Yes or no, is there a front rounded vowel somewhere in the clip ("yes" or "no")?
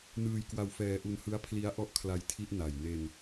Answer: no